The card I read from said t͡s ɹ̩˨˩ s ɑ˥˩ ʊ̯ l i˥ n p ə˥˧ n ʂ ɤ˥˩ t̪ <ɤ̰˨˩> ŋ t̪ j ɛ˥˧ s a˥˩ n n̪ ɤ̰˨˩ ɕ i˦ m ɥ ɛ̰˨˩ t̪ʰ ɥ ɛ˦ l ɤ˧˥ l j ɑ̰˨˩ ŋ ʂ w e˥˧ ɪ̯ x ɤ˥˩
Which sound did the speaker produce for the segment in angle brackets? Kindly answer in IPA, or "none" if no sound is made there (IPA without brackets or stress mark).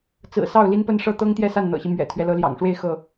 ɤ˥